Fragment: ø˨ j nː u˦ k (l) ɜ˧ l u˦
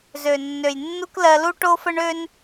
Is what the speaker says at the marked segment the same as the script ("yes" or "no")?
yes